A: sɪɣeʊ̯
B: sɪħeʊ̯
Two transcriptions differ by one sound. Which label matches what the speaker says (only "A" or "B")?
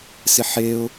B